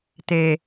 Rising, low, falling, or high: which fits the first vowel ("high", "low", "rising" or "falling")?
low